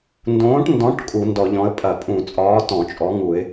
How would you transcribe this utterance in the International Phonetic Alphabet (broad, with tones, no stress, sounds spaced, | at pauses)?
n d õː˨˥ ʈ n d ɔ̃˨˥ ʈ kʼ u˧˩˧ n d ɔ˧˩˧ ʎ ɔ̃˨˥ ə̯ pʼ ɐ˧˩˧ pʼ ũ˧˩˧ t͡sʼ ɒː˨˥ t ɔ̃˧˩˧ t͡ʃʼ ɔ˨˥ ŋ u˧˩˧ ɪ̯